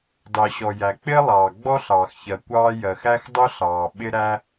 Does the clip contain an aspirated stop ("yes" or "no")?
no